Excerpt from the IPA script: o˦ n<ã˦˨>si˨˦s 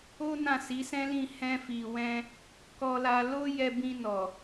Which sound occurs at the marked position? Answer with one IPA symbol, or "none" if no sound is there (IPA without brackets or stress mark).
ã˦˨